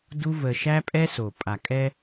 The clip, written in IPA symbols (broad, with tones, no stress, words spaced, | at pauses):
du˦və˧ ʃæ˦pʼɛ˦so˨ pʼa˨kʼɛ˧